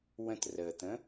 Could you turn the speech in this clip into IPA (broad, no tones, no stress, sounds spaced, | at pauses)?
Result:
w ə̃ t r əː t̪ ə̃